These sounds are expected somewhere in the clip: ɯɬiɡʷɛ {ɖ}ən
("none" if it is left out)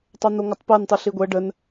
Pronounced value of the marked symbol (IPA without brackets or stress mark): ɖ